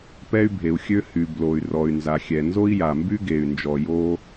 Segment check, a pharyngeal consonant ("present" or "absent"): absent